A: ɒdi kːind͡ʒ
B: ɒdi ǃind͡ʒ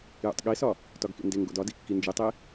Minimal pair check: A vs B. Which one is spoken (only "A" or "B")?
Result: A